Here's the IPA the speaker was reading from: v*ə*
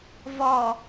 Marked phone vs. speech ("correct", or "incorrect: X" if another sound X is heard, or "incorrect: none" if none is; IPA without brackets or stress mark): incorrect: ɔ